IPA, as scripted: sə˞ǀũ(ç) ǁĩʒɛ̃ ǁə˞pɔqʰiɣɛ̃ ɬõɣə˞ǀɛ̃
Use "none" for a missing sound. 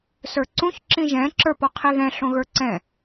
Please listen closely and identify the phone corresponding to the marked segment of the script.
ç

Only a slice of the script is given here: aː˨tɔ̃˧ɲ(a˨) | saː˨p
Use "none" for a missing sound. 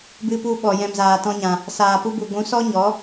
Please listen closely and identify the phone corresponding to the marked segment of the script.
ã˨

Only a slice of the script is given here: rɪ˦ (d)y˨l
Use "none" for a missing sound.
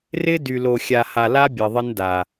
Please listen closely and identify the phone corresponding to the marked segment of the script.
d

